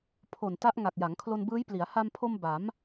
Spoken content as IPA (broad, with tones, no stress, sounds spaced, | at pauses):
pʰ o˨˩ n t a˦˥ ʔ ŋ a˨˩ k̚ j a˩˦ ŋ kʰ l o˧ n b ɯː˦˥ j p l i˩˦ a̯ h a˧ m pʰ o˧ m b a˩˦ m